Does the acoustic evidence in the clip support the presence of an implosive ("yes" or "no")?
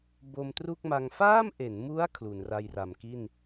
no